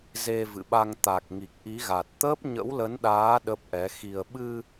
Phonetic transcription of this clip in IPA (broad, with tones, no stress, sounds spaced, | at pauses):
z e˧ v ɨ̰˧˨ ɓ a˧ ŋ t̪ a˨˩ k̚ ŋ i˨˩ k̚ ʔ i˨˦ ɣ a˨˩ t̚ t̪ əː˦˥ p̚ ɲ ə̰˧˥ w l ə˨˦ n ɗ aː˨˦ ɗ ə˦˥ p̚ ʔ ɛ˨˦ x i˧ ə̯ ɓ ɨ˧